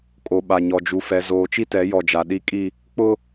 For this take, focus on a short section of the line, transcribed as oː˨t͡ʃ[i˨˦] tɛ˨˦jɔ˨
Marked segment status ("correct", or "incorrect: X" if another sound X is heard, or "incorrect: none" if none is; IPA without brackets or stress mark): incorrect: i˦